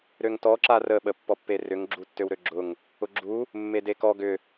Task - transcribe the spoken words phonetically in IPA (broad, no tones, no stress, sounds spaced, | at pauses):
ɾ ø ŋ t ɔ ǁ a r ə ɓ ə pː ɔ pː e r ʏ ŋ ɡ͡ǁ u tː ø w ɾ ø ɡ͡ǁ ʊ ŋ | ʊ ɡ͡ǁ u | mː e d e k ɔ ɡ ʏ